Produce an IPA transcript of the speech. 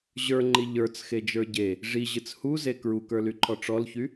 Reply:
ʑə˞ŋ͡ǃi ʎə˞t͡sxed͡ʒə˞ ɟe | ʐiʑɨt͡s huze kɹukə˞lyǃʰɔ ʈ͡ʂɔlçy

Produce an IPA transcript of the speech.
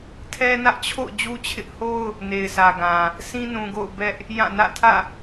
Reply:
tʰɛ˦nä˦ʔt͡ɕʰo̰˦˨ʊ̯ d͡ʑu˦t͡ɕʰɪ˦ʔ ho˦ʊ̯ | ne˨ɪ̯sʰä˨ɡã˨ | sĩ˦ nũ˨ɡo̰˦˨ʊ̯ bɛ˦ʔ | jã˦˨nä̰˦˨ tʰä̰˦˨

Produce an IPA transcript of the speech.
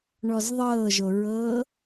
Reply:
ɳɔzðˤɤːʒoɹɤː

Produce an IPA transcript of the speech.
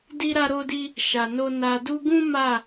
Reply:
di˦ɾa˦ɾo˦di˦ | ʃa˨no˧ na˨du˧ɡũ˦ ma˦˨

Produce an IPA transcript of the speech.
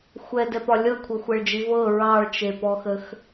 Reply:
xʷɛdɛpɒ lʲɤkʷʰɤxʷɛɭd͡ʒi vɤ ɹɑɭt͡ʃepɔxəx

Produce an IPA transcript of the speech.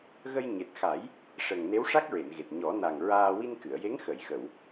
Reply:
ɣə˧j ɲe˨˩t̚xa˨˩˦j | ʂə˨˩ŋ ne˧˥wʂa˦˥k̚ɹe˨˩˨nɣe˨˩t̚ ɲɔ˨˩˦na˨˩ŋ ɹaː˧ wi˧nkɨ˨˩˨ə̯je˧˥ŋ xə˨˩˨jxə˨˩˨w

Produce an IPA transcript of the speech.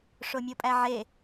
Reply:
ʂomʲopʼæʕe

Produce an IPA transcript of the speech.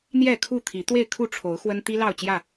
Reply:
n̪jɛ˥˨kʰu˥˨t̪ʰi˨˦ t̪we˥˨ɪ̯kʰu˥˨ʈ͡ʂʰo˨˦ʊ̯xwə˦n t̪i˦ lɑ˥˨ʊ̯t͡ɕjä˥˨

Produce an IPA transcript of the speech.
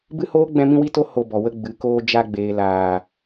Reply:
bɨ˦hoː˦ ɡ͡bɛ̃˦mĩ˦wi˦to˦ ho˧ bɔ˨wə˧ ɡ͡bɨ˨˦koː˦ d͡ʒa˧ɡ͡beː˨laː˨

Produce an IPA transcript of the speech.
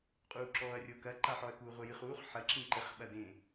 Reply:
qʼuːǁɔːɐ̯rʲokɐ ǃaħɔɐ̯kuːʁʷɘ jɨχuːχ ħɐ ǁĩǃɘχ ɓɐdẽ

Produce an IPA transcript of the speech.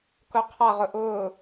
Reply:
kʊqʰaʁʊ ʔʊː

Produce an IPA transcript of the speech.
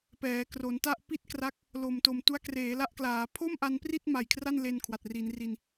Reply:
pɛː˩˦kro˩˦nta˥˩ʔ pi˥˩t̚kra˦˥k̚ | lo˨˩mto˨˩m tu˦˥a̯kreː˩˦la˦˥ʔklaː˩˦ pʰo˥˩mʔa˧npri˥˩t̚ ma˨˩jkʰra˥˩nle˧n kʰwa˨˩t̚ri˩˦nri˧n

